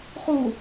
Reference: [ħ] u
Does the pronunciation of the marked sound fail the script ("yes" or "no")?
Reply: yes